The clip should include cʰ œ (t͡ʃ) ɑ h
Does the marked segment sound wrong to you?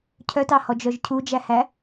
yes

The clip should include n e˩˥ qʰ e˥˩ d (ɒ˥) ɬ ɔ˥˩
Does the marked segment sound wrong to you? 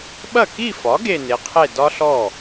no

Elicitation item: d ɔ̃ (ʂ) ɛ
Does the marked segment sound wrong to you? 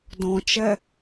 yes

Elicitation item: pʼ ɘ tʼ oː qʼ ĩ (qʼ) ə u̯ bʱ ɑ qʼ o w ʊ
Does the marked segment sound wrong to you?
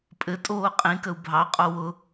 yes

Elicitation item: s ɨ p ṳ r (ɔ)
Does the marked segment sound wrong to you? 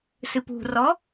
no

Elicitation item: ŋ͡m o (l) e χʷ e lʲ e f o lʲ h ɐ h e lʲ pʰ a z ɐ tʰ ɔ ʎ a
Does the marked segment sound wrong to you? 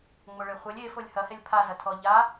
yes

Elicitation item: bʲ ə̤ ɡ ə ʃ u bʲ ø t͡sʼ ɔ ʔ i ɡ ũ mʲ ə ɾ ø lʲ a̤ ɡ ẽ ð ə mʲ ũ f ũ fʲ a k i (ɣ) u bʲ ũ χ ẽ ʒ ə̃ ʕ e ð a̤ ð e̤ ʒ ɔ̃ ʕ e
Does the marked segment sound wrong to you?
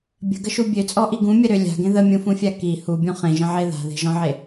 yes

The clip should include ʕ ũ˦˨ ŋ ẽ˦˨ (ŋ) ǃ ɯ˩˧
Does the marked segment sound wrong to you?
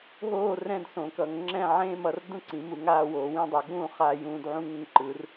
no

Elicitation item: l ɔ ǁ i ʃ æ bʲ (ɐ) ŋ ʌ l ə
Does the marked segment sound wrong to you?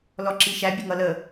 yes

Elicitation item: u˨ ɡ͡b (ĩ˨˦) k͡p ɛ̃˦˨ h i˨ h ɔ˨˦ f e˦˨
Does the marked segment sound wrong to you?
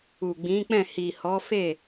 no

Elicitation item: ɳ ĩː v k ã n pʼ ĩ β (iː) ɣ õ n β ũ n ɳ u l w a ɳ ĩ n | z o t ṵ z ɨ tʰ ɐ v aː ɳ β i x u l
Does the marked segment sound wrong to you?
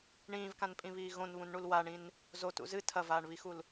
no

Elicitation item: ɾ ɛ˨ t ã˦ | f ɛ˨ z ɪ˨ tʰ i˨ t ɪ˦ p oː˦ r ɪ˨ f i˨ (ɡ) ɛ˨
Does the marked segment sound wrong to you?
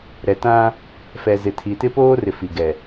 no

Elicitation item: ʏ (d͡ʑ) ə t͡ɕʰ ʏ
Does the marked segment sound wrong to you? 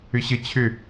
yes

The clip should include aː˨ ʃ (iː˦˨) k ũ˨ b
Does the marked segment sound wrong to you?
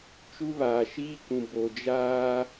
yes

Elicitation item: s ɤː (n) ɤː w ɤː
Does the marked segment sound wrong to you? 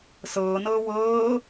no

